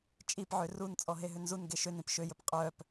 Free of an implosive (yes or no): yes